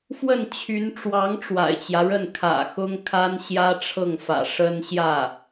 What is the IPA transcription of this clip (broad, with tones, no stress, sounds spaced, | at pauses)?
f w ə˥˩ n t͡ɕʰ y˧˥ n ʈ͡ʂ w ɑ˧˥ ŋ ʈ͡ʂ w a̰˨˩ ɪ̯ t͡ɕ j ä˦ ɻ ə˥˩ n kʰ ä̰˨˩ x ʊ˥ ŋ kʰ a˥ n ɕ j ä˥ ʈ͡ʂʰ ɤ˥˩ ŋ f ä̰˨˩ ʂ ə˥ n ɕ j ä˥˩